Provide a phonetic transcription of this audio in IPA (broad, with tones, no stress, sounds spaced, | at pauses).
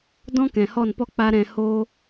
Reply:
d ɔ̃˦ k ɛ̃˨ h ɔ˦˨ n p ɔ˦ k͡p a˦ ɾ ɛ̃˧ h oː˦